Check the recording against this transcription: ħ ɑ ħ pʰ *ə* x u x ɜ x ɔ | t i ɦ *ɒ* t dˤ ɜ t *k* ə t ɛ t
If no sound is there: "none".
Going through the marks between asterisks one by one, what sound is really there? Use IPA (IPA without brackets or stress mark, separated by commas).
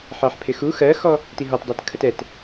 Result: ɪ, ɒ, kʰ